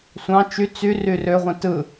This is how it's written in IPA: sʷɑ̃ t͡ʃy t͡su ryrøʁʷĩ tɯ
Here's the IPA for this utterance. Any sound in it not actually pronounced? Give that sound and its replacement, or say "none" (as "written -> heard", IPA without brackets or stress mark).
u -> y